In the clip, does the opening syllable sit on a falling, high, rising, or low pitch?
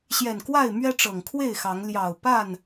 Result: low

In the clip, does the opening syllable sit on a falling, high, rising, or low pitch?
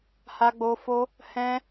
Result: high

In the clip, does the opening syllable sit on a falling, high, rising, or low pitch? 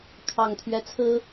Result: low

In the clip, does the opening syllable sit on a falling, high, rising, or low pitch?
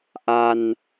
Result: low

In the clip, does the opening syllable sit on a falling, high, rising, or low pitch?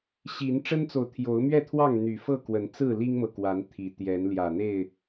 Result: rising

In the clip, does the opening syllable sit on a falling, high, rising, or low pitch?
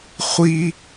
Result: high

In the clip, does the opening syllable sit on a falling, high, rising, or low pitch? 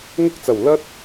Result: high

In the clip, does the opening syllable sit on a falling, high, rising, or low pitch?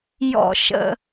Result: low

